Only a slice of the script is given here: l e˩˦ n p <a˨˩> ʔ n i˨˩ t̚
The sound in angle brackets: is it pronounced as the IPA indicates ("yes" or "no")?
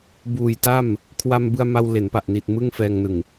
yes